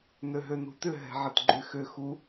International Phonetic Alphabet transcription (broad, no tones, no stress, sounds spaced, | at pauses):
n ø ɦ ø n ṳ t ʏ ɦ ɛ̤ ʕ ɪ t ɡ͡ǃ y x ʏ x u